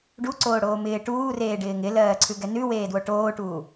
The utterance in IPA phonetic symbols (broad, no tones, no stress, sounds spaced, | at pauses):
ɖ u ǀ oː ɽ oː m ɪː ʈ uː r eː ɖ ɪː ŋ ɪ l ɜː ǀʰ ʉ ɡ ɛ n ʉ w eː d w o ʈ oː ʈ uː